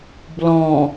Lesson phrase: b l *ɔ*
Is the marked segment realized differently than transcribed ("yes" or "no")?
yes